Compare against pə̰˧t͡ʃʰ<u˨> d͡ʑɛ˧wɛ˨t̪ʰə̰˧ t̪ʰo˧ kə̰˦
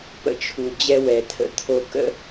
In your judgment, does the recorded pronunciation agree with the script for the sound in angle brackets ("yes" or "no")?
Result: yes